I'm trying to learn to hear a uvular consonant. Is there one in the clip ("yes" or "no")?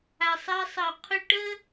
yes